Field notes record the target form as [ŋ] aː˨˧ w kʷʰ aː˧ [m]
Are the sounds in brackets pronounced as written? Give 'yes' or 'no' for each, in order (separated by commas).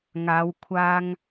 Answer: yes, no